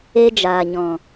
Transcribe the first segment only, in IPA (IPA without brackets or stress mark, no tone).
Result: e